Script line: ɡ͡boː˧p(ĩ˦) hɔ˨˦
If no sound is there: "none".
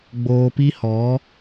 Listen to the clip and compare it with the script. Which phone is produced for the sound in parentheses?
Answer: i˦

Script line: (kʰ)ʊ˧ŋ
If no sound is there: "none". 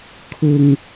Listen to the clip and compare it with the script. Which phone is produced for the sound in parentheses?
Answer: kʰ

